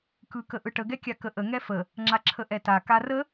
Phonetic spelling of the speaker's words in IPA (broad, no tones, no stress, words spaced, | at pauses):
kɯkəʔɯʈə ɡɛkʲakəʔə ŋɛfə | ŋ͡ǁaǁʰəʔɛta karə